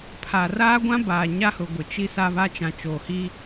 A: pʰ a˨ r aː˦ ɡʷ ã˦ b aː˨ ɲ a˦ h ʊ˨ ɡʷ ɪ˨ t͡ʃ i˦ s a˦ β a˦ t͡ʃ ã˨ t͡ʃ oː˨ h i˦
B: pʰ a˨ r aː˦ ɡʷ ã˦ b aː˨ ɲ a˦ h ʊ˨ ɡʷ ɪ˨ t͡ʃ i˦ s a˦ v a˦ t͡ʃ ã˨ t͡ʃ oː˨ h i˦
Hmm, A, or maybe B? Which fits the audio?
A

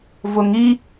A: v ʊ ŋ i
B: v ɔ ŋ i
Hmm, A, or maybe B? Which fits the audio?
A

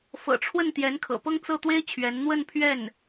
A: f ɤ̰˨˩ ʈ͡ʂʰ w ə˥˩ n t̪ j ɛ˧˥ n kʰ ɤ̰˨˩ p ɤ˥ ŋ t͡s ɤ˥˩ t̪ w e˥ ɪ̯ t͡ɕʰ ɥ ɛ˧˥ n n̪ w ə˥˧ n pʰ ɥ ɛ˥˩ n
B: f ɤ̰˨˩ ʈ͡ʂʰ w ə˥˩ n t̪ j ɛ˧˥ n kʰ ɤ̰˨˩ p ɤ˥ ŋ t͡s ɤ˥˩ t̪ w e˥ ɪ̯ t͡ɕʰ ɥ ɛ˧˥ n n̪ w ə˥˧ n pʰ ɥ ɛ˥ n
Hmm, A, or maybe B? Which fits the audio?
A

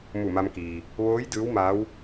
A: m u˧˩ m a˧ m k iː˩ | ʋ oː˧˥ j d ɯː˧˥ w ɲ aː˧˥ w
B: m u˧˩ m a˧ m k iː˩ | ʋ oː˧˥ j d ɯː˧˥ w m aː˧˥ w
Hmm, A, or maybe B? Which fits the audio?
B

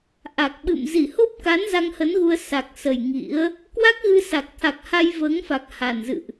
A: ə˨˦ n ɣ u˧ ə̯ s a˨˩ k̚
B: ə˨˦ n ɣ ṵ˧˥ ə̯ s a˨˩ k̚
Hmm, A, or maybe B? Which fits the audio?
A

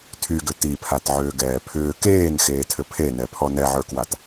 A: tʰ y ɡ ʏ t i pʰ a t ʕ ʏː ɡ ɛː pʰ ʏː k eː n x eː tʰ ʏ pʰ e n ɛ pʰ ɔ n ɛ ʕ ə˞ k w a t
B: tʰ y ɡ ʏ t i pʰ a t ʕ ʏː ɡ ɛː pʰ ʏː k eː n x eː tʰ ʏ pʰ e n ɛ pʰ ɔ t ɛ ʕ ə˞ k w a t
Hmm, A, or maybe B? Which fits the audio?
A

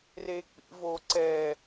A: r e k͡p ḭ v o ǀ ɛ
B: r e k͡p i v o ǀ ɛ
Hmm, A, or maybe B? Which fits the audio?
A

